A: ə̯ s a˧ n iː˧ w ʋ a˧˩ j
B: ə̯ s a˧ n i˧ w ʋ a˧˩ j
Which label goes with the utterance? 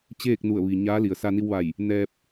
B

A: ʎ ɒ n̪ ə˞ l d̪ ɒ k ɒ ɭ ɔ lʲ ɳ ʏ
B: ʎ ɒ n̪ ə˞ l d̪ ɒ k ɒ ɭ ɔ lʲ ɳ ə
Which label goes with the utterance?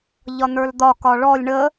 B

